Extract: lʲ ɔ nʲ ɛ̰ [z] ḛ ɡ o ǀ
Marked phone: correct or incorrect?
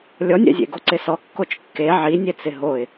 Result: incorrect